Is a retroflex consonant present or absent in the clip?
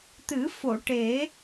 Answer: present